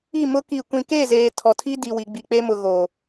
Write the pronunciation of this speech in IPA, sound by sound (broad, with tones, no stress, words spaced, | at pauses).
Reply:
i˦˨mʊ˦ ki˨kʷĩ˨ke˦˨zeː˨ tʰɔ˨tʰi˦di˨wi˨ ɡ͡bi˨k͡pe˦mʊ˨ ɣo˨